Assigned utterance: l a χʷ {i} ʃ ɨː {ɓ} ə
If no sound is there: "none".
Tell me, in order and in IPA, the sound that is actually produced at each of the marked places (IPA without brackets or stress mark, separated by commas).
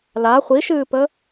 i, p